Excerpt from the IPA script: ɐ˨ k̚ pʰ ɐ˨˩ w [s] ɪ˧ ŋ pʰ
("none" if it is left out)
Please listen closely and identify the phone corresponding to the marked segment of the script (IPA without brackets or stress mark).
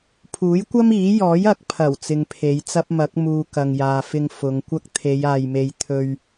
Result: t͡s